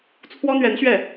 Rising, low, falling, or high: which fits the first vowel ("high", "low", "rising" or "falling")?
high